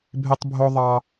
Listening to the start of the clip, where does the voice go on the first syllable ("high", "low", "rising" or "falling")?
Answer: high